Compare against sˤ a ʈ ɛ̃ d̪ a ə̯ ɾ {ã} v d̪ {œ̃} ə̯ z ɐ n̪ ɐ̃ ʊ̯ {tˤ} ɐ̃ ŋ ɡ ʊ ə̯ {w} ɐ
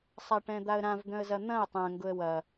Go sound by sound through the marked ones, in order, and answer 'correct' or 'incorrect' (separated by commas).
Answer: correct, correct, correct, correct